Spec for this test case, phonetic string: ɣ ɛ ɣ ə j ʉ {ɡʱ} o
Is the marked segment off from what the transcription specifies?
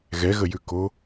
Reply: yes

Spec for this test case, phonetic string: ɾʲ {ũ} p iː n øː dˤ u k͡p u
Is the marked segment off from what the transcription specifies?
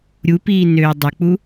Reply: yes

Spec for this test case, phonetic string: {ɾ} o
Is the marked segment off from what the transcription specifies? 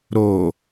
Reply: no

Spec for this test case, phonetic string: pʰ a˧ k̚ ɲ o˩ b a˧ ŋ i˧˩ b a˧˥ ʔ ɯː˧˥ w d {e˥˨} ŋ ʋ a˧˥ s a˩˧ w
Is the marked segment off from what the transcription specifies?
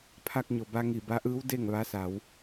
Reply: no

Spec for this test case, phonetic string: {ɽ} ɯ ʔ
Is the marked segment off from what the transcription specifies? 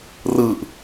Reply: yes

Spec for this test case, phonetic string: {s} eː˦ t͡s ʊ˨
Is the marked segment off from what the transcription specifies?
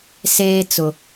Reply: no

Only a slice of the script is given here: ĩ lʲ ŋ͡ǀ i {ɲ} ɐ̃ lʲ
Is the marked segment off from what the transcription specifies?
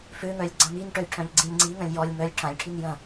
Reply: yes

